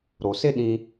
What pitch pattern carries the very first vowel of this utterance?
low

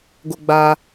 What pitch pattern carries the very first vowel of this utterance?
high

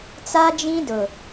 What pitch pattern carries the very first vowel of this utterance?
high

